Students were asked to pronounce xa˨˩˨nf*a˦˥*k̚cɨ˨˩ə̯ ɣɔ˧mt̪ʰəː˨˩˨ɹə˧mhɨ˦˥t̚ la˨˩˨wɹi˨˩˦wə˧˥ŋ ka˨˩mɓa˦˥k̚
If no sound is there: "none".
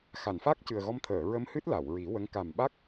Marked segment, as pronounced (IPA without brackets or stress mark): a˦˥